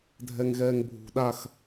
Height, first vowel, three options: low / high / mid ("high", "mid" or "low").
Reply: mid